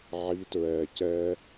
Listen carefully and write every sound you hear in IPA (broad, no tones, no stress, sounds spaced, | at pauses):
ʕ i t ɹ ɛ c ɛ